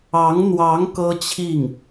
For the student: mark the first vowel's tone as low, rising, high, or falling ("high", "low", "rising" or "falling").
rising